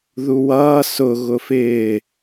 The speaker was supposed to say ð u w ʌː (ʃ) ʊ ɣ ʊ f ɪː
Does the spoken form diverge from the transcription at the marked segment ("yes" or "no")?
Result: yes